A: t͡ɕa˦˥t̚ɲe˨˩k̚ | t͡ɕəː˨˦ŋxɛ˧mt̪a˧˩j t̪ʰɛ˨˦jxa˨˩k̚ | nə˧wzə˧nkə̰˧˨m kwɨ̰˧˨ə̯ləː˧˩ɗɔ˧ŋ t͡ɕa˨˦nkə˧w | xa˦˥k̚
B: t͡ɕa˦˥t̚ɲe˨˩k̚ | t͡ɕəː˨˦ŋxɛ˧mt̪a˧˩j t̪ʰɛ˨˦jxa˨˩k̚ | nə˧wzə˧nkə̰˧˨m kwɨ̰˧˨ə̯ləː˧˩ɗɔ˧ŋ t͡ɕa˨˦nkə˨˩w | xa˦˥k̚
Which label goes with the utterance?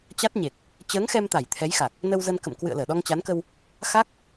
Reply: A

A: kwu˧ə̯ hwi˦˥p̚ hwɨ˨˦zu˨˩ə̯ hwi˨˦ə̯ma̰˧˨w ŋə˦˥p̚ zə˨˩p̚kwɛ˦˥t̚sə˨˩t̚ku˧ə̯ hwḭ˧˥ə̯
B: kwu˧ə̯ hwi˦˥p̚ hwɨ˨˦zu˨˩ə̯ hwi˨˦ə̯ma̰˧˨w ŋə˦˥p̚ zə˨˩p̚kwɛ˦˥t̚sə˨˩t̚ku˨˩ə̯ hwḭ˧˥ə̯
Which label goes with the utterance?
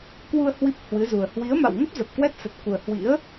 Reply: B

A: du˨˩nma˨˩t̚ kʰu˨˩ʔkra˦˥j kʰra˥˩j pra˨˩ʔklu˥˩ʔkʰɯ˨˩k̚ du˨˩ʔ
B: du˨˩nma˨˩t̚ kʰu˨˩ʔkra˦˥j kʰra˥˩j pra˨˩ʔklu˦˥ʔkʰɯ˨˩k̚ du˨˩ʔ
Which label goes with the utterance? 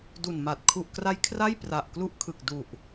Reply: B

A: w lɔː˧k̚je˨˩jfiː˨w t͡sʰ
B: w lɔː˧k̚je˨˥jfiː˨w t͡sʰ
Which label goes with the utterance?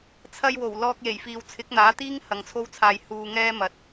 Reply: A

